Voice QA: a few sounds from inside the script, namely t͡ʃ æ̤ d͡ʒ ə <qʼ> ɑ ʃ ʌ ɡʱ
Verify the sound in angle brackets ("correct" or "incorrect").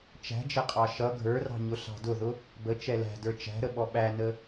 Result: correct